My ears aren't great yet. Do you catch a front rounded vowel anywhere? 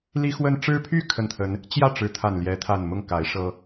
yes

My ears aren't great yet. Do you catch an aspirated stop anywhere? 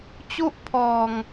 yes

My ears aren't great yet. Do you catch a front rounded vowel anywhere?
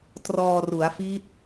no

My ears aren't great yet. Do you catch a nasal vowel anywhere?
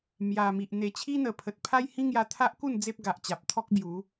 yes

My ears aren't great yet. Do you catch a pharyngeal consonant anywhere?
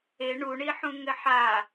yes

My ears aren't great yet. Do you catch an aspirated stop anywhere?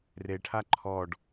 yes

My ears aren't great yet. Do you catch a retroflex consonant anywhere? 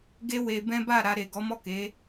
no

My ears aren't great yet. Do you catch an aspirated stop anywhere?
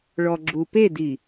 no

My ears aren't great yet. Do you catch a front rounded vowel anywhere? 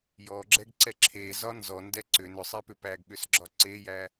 yes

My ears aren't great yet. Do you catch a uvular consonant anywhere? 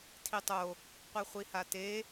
yes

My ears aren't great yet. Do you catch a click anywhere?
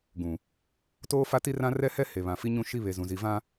no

